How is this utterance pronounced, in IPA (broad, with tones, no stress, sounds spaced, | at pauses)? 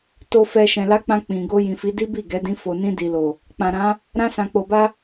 t o˨ f ɛ˨ ʃ ɛ̃˨ l a˧ k͡p ã˧ k͡p ĩ˨ ɡ o˧ j ĩ˨ f i˨˦ d i˦ b i˦˨ ɡ ɛ˨˦ d ĩ˧ f o˨ n ĩ˧ d i˨ l o˨ | k͡p ã˨ ɾ ã˨˦ | ɾ ã˧ s ã˨ k͡p o˨ b a˧